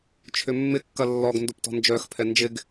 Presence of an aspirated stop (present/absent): present